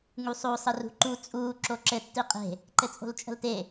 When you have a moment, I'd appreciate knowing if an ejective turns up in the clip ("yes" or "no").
yes